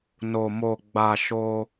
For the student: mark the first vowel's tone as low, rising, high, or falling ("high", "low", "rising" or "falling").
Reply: low